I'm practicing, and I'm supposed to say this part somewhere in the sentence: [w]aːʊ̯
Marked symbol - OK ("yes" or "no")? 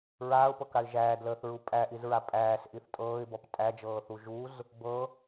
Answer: no